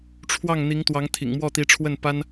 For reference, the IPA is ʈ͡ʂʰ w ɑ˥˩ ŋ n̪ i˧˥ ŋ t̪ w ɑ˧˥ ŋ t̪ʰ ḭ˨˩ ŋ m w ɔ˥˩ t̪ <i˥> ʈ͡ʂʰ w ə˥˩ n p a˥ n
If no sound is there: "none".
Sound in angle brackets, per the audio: i˧˥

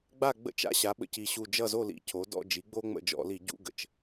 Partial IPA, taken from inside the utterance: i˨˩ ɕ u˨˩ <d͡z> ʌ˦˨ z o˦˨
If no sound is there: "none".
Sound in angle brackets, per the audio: d͡ʒ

